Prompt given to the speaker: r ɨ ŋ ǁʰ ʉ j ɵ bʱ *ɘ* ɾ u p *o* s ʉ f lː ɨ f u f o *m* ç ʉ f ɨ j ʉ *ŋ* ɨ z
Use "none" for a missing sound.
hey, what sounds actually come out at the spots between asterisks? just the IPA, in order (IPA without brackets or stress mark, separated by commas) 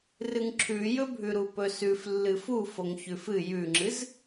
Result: ʉ, ɵ, ŋ, ŋ͡ǁ